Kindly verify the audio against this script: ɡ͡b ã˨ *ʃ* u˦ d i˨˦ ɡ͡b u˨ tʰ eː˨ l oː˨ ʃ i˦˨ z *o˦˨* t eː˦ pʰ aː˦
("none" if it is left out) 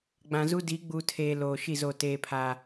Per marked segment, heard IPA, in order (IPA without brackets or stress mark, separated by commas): z, o˦˨